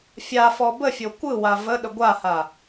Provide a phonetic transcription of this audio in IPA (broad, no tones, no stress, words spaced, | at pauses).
fʲafɔ bəfʲo kʷɯwa vəɗə ɡʷaha